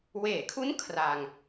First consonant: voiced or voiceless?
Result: voiced